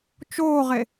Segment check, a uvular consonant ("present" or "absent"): present